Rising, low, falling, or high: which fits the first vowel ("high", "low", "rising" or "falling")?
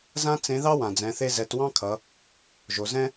high